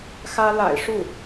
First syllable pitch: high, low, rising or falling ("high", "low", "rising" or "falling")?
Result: high